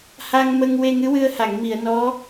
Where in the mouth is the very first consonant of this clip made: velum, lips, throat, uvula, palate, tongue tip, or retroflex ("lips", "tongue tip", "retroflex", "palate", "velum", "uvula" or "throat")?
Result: throat